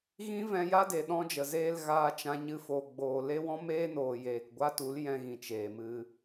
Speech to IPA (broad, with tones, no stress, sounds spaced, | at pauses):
ɣ ĩ˦ v ɛ̃˧ j a˦ d e˨ ɗ ɔ̃˧ d͡ʒ ə˨ z eː˧ l ɣ aː˧ t͡ʃ ã˧ ɲ ɨ˧ f o˨ ɡ͡b oː˨ l e˦ w ɔ̃˦ m eː˦ n oː˨ j eː˨ k ɡʷ a˦ t u˨˦ l j ɛ̃˧ ɣ ĩ˨ t͡ʃ eː˨ m ɨ˧